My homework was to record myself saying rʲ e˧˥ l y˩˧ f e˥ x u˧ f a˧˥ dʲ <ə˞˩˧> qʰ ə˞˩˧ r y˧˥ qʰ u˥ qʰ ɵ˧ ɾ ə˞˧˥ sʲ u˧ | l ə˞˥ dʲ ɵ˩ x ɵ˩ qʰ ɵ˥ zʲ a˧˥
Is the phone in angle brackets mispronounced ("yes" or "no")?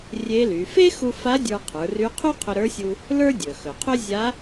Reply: yes